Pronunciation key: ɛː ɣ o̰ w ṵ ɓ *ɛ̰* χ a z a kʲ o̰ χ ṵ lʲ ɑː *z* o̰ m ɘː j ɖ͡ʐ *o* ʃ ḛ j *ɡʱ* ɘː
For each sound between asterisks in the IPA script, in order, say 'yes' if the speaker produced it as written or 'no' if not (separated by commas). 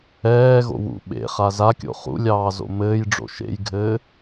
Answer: no, yes, no, yes